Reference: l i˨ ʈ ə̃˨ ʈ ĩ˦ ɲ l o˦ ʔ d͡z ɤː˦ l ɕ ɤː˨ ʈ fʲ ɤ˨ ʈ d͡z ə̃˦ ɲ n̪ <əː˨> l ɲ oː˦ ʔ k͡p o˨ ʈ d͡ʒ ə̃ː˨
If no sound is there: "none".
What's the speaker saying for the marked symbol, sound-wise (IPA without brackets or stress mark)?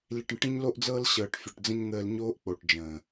əː˦